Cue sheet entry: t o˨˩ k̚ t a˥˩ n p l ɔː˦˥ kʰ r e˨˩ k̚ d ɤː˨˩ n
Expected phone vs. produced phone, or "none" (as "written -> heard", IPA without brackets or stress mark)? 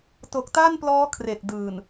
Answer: ɤː˨˩ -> ɯː˨˩